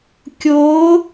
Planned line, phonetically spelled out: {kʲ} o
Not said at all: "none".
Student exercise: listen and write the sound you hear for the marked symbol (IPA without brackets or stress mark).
kʲ